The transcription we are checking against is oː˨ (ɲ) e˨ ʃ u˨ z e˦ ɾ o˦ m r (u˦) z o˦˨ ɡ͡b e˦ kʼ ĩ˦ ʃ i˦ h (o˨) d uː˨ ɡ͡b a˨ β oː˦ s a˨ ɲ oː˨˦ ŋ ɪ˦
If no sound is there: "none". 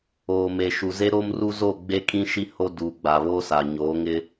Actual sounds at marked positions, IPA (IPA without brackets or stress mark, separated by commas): m, u˦, o˦